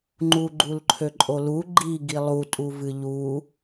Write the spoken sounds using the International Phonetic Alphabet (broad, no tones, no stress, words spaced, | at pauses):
ŋ͡ǃuɡ͡ǃulǃʰøǃʼo lu ɡ͡ǃiɡi lˠutʼuvɨ ʎu